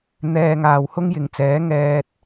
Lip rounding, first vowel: unrounded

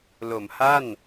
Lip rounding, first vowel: rounded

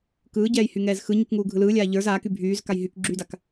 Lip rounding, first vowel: unrounded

